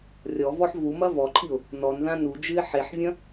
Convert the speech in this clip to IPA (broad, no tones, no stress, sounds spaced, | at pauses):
rʲ ɔ v ɔ ħ v u m ɐ v ɔ ǃʰ i ʊ̯ | n ɔ n ð ã n u d͡ʒ ɨ ɪ̯ ħ e ħ vʲ ɐ̃